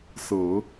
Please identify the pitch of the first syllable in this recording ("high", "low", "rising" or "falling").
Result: low